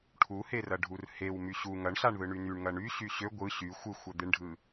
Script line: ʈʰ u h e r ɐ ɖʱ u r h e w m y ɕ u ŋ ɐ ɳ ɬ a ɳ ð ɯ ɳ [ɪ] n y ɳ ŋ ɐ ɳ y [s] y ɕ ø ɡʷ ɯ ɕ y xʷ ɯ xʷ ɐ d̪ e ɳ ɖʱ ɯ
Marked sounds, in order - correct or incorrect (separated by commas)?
incorrect, incorrect